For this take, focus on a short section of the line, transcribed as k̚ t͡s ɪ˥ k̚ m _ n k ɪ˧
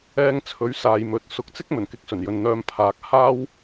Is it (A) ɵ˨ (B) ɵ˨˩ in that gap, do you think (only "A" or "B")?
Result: B